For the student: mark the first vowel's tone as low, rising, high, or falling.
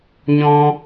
high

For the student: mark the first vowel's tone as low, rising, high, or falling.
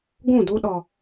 falling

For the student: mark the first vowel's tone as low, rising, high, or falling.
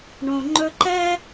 low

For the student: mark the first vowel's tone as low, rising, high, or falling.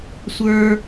high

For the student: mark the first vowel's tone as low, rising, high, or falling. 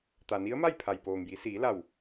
low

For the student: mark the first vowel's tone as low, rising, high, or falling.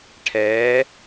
rising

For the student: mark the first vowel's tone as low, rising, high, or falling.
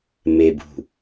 low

